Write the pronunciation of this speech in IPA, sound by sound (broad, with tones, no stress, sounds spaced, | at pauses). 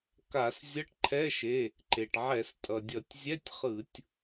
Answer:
k a˧˩˧ s zʲ ʌ˧˥˧ ʈ ǃʰ ɛ˧˥˧ ʃ e˩˧˩ | ǃ e˩ ʈ ʕ ɛ˧˩˧ s tʼ ʌ˩ dʲ ʌ˧˩˧ tʲ zʲ ɛ˧˥˧ tʲ χ ɯ˧˩˧ tʲ